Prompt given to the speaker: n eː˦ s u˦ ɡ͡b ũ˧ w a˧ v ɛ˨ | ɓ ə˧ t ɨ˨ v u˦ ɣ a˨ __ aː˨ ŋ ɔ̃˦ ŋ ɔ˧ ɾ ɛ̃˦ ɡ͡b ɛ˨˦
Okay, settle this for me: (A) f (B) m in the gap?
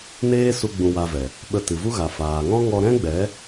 A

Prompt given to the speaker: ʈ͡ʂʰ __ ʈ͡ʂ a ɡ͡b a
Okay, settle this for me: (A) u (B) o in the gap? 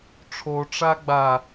B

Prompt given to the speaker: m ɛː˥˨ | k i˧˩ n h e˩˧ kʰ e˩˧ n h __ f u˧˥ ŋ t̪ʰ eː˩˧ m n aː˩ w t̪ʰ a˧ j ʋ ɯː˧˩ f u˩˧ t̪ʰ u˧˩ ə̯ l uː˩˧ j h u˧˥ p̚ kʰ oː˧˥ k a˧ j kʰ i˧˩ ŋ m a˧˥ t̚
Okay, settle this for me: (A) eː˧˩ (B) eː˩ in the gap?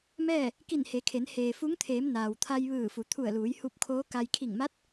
B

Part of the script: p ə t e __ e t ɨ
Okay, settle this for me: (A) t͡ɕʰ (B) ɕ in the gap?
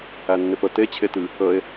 A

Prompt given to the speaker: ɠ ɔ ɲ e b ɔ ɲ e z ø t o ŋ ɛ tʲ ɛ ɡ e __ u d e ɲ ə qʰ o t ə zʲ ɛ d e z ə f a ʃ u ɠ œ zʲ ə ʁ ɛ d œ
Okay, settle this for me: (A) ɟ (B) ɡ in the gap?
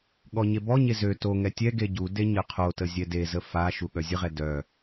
A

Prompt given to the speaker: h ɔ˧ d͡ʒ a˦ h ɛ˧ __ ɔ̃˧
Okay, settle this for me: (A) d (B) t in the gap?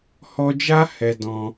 A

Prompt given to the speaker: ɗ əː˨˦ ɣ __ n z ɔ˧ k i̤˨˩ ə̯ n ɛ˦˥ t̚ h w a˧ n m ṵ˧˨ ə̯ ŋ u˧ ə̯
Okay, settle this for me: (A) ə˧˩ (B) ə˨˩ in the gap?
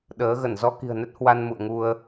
A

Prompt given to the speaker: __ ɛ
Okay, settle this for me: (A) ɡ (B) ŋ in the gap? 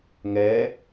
B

